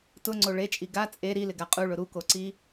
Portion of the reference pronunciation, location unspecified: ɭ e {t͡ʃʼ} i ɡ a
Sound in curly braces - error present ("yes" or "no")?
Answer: no